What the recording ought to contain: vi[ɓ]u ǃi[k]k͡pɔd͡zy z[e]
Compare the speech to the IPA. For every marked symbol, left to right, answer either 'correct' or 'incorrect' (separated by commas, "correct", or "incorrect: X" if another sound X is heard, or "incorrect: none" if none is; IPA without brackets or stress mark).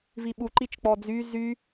correct, incorrect: t͡ʃ, incorrect: y